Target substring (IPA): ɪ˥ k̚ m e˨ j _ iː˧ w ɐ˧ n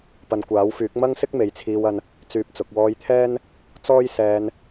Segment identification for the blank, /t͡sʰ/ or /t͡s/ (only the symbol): t͡sʰ